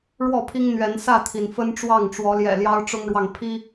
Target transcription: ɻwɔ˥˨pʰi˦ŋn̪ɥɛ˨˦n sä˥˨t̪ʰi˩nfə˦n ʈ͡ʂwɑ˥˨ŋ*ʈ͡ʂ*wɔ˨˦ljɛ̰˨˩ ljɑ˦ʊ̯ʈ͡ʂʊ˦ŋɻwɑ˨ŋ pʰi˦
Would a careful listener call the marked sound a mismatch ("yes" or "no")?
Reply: no